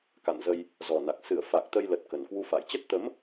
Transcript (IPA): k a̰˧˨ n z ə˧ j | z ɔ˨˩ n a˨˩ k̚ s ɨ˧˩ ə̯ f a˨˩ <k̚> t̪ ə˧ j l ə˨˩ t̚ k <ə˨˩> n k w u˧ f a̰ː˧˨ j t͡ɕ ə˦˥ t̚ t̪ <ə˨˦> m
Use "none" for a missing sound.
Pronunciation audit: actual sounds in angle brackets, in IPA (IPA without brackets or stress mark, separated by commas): k̚, ə˨˩, ə˨˦